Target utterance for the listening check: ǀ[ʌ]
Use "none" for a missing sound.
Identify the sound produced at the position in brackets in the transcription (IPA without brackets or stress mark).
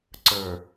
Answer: ə˞